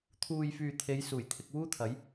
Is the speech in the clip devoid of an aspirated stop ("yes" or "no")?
no